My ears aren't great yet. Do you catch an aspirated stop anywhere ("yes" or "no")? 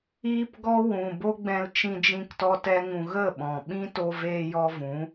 no